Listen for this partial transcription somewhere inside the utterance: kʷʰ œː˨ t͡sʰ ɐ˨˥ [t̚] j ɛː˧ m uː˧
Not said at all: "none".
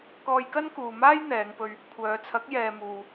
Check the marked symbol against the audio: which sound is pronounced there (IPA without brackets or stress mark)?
k̚